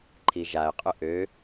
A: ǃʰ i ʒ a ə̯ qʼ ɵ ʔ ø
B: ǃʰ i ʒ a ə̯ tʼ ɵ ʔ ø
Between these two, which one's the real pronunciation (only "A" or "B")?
A